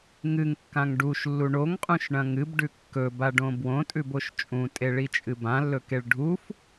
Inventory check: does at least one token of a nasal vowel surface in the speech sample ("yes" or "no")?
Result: yes